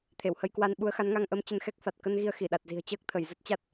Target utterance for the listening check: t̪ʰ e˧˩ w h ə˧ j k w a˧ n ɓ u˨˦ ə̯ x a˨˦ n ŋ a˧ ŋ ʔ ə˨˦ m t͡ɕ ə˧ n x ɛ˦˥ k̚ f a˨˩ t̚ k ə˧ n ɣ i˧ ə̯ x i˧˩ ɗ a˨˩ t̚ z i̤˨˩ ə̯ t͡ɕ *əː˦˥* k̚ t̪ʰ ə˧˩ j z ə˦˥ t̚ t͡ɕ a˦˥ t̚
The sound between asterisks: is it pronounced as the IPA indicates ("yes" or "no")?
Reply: yes